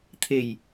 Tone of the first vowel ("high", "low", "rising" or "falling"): low